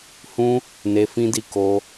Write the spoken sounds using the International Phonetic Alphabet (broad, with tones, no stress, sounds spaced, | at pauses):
h ũ˧ | n e˧ f ĩ˧ d i˧ k o˧